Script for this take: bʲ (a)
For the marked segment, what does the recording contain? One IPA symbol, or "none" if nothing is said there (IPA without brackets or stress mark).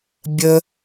ə